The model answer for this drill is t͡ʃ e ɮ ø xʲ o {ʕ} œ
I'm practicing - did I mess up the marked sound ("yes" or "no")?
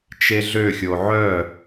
no